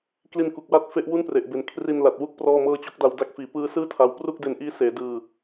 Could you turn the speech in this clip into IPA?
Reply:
k l i˧ n k u˨˩ k̚ w a˦˥ t̚ f e˦˥ ʔ w u˥˩ n p r e˨˩ ʔ b e˨˩ n kʰ r i˧ n l a˨˩ t̚ w u˦˥ k̚ p r ɔː˥˩ m ɤː˥˩ t͡ɕ o˦˥ k̚ d a˧ w d a˦˥ k̚ f iː˨˩ p ɯː˦˥ s ɯː˥˩ tʰ a˧ w p r u˥˩ k̚ d e˧ n ʔ iː˦˥ s eː˩˦ d ɯː˧

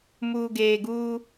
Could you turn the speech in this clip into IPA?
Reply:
m uː˨ ɡ eː˨ ɡ uː˦

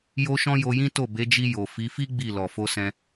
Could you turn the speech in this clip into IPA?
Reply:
j o˧ ʃ ɔ̃˧ j o˧ j ĩ˦ t o˦˨ b e˨˦ d͡ʒ i˧ j o˨ f i˨˦ f i˦ ɡ͡b i˦˨ l ɔ˨ f o˧ s ɛ̃˧

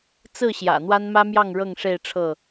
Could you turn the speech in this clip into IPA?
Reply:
t͡s ɹ̩˥˨ ɕ j ä̰˨˩ n̪ w a˦ n m ä˦ m j ɑ˥˨ ŋ ɻ ɤ˥˨ ŋ ʂ e˥˨ ɪ̯ ʈ͡ʂʰ ɤ˥˨

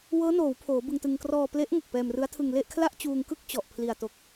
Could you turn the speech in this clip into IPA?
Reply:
w ɤː˦˥ n oː˩˦ w pʰ oː˩˦ b ɯ˧ ŋ t ɯ˧ ŋ k r ɔː˧ p l e˦˥ ʔ ŋ o˨˩ k̚ p ɛː˧ m r ɯ˦˥ a̯ tʰ ɯ˧ ŋ l e˥˩ ʔ kʰ l a˥˩ ʔ t͡ɕ uː˧ ŋ k ɯ˥˩ k̚ t͡ɕ ɔ˨˩ ʔ pʰ l i˨˩ a̯ t o˨˩ k̚

